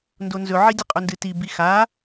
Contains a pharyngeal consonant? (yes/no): yes